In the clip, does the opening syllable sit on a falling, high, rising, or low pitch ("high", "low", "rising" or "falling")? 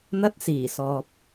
high